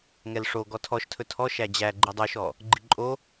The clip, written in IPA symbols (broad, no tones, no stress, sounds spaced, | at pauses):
ŋ ɛ l ʂ o ɡ ɔ tʰ ɔ ʃ tʰ ɵ tʰ ɔ ʃ æ d͡ʑ æ ɡ͡ǃ i dˤ o ʃ ɔ | ɡ͡ǃ i ǃʼ o